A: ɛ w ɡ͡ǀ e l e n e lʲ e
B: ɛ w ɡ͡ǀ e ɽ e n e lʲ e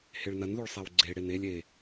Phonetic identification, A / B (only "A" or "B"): B